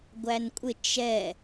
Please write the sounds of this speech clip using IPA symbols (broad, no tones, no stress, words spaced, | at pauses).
ɡʷænkʷʼɪ t͡ʃɛ